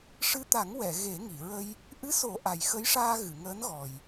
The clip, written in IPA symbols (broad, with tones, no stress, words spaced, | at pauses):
ʂɨ˧˥t̪a˨˩˦ŋ wɛ˨˩˨ ɣe˨˩˦ŋi˨˩˨ɹə˧j | ʔɨ˧˥so˨˩˦ ʔa˨˩jxə˧˥jʂaː˧ ɣɨ˨˩˨ŋəː˧˥nɣɔ˨˩j